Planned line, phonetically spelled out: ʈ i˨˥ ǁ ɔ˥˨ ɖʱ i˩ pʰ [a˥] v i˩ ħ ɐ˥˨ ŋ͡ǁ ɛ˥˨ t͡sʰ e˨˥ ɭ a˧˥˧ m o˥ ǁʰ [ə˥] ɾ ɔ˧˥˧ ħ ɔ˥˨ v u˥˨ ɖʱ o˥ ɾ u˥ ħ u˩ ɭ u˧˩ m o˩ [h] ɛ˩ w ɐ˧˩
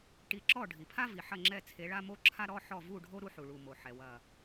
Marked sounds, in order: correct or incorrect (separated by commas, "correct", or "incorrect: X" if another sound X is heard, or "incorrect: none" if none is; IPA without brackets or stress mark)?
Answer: correct, incorrect: a˥, incorrect: ħ